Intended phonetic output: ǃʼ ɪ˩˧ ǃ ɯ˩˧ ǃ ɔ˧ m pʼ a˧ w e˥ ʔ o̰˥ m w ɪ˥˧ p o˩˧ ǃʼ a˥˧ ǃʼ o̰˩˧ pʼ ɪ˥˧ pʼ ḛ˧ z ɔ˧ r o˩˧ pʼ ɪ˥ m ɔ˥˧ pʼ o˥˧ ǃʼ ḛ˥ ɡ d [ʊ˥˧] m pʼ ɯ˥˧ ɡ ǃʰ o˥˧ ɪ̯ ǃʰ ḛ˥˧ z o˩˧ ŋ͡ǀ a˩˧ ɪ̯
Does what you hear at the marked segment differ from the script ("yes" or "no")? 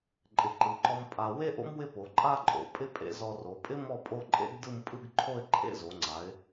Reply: yes